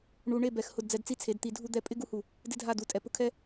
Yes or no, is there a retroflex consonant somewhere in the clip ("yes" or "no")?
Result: yes